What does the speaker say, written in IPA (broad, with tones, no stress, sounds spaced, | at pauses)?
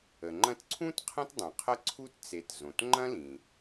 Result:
ə˩ ŋ͡ǃ ɐ̃˥ t ǀʰ ũ˥ t qʰ ɐ̃˥ t dˤ õ˩ qʰ ɐ˥ ǀʰ u˥ t t͡s e˩ t z õ˩ t ŋ͡ǃ ɐ̃˥ l ĩ˩